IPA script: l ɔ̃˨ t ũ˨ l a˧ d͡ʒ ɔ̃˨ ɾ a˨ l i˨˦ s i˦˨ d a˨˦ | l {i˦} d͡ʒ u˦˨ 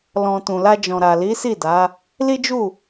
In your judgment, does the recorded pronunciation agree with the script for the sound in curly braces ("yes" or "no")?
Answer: yes